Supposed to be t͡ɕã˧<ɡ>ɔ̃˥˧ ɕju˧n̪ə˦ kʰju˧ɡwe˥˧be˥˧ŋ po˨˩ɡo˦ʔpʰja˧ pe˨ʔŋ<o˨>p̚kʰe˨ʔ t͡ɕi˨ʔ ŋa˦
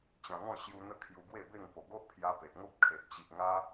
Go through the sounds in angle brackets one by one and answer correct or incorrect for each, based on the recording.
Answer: incorrect: ŋ, incorrect: o˦

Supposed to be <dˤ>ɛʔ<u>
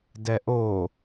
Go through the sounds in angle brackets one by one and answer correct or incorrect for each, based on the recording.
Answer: incorrect: d, incorrect: o

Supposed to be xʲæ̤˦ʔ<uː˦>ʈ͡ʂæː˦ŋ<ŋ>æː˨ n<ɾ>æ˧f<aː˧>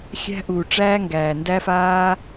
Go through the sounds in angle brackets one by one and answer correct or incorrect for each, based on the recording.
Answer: incorrect: uː˨, incorrect: ɡ, incorrect: d, correct

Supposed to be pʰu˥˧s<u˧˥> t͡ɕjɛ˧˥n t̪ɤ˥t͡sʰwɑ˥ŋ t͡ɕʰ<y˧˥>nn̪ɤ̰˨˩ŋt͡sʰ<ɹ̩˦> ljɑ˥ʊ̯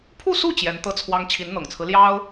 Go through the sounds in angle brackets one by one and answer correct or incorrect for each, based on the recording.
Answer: incorrect: u˥˩, incorrect: i˧˥, correct

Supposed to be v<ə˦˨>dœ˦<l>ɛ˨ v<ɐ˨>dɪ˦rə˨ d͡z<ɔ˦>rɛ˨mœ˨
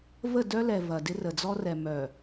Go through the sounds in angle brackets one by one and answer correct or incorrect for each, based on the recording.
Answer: correct, correct, correct, correct

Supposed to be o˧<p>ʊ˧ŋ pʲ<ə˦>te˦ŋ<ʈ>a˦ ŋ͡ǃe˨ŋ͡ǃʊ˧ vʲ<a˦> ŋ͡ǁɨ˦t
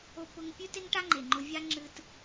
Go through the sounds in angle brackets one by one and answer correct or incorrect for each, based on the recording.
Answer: correct, incorrect: ʉ˦, correct, correct

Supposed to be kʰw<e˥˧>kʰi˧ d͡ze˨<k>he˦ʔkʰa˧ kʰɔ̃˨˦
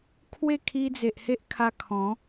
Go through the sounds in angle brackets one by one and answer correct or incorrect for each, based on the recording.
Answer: correct, incorrect: ʔ

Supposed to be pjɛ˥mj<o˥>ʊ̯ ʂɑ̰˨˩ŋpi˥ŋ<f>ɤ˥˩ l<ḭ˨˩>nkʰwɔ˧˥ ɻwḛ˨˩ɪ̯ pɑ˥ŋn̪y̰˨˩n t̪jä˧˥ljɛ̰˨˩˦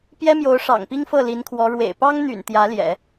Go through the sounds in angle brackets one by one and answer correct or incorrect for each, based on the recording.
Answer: incorrect: o˧˥, correct, incorrect: i˧˥

